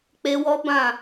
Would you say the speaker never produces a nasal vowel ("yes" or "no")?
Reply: no